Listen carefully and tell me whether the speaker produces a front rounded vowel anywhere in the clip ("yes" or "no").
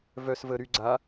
yes